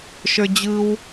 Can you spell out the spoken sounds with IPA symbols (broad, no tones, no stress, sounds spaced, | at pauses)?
ʃ ə˞ d͡ʑ ɯ w